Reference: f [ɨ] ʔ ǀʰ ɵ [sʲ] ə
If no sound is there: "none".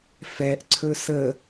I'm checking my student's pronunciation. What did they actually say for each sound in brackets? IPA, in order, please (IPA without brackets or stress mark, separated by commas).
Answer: ɛ, s